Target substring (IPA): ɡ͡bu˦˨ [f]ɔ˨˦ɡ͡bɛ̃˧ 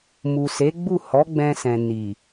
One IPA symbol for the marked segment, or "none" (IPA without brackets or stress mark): h